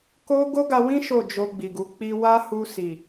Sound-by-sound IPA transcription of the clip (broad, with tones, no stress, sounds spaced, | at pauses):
k o˦ ɡ o˦ ɡ a˧ w ĩ˦ ʃ o˦˨ d͡ʒ o˧ ɡ͡b i˨ ɡ u˨˦ k͡p i˧ w a˦ h u˧ s i˨